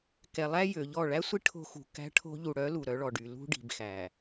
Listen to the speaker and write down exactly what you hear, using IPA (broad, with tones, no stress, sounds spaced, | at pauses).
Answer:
k ɛ˨ lˠ æ˦ j ø˨ ʎ ɔ˦˨ ɭ æ˦ sʷ i˦ ʈʰ o̤˦ x ṳ˨ k æ̤˦ ʈʰ o̤˦ ʎ u˨ ɽ œ˨˦ l u˨ ɾ œ˨˦ ɭ ɔ˨ ɖ y˨ l ṳ˦ ɖ i̤˨ b x æ˨